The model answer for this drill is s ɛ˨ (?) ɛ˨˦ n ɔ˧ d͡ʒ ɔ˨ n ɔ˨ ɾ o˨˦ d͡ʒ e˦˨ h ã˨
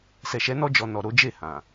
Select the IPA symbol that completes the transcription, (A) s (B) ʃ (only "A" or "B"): B